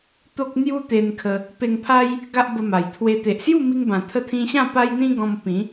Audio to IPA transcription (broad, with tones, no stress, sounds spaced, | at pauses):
t̪ o˦ k̚ n̪ j u˦ t̪ e˧ n kʰ ə˧ | p e˧ ŋ pʰ a˦ j | ɡ a˦ ʔ b ə˧ m a˨˩ j t̪ʰ w e˧ t̪ e˨ ʔ s j u˥˧ m i˧ ŋ b ã˨˩ t̪ʰ ə˧ t̪ʰ ĩ˧ ɕ ã˥˧ p a˦ j n̪ ĩ˦ ɡ ɔ̃˧ m p ĩ˨˦